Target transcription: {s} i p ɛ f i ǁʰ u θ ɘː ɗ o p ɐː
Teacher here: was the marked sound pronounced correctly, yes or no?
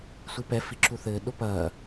no